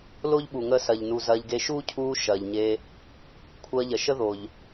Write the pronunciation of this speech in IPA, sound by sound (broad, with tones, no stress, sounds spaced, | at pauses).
l o˦ ʎ ɓ u˨ ŋ əː˧ s ɐ˨ ʎ n u˨ z ɐː˧ ʎ ɡ e˧ ʃ uː˦ cʰ uː˧ ʃ ɐː˨ ʎ ɲ e˧ | kʷʰ ɐː˧ ʎ ɐ˨ ʃ ə˦ ð o˨ ʎ